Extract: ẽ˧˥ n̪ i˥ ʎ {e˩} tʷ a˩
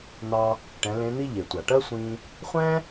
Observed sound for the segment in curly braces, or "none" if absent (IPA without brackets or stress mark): e˩